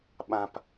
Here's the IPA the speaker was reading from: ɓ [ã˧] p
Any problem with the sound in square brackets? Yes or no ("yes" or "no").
no